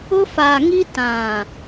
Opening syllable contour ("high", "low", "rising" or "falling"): high